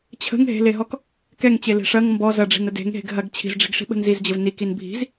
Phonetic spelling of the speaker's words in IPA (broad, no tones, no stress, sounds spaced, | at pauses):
t͡ɕʰ ə̤ ŋ ɦ e̤ l e ɦ ɔ k | k ɛ ŋ t͡ɕ e l e̤ ʂ ɐ ŋ m b ɔ z ɐ ɖ͡ʐ i̤ n ə d e̤ ŋ ɦ e̤ ɡ ɦ ɐ ɡ t͡ɕʰ i̤ z ɖ͡ʐ i̤ ɡ ʂ i̤ ɓ ə̤ n z i z d͡ʑ ə v n i k i n bʱ i̤ z